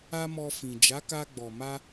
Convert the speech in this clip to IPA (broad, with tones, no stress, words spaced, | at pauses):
a˦mɔ˧fĩ˨ d͡ʒa˨˦ka˧ɡ͡bɔ˨ma˧